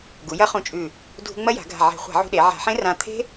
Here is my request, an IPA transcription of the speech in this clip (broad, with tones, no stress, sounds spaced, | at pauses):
ɡ u˩˧ j ɐ˦˥ χ ũ˧ t͡ʃʼ ʉ˧˩ | dʱ ṳ˧ ŋ͡m ɐ˦˥ j a̤˩˧ ɡʱ a̤˧˩ ʕ e̤˧˩˧ χʷ a̤˧˩˧ ʕ ṳ˧ ɗ e˩˧ ʕ a̤˧˩˧ ħ ẽ˦˥ r ã˧ t̪ʰ e̤˦˥